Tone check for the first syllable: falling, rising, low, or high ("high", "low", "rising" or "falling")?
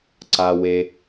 low